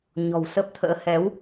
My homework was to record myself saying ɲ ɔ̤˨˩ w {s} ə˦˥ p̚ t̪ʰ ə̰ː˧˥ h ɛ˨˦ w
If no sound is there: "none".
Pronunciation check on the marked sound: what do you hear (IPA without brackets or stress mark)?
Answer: s